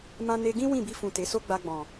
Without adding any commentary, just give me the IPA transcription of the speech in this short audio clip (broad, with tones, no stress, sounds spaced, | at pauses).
m ã˧ n e˧ ɡ ĩ˦ w ĩ˦˨ b i˧ f ũ˨ t e˨˦ s o˦ ɡ͡b a˧ ɡ͡b ɔ̃˨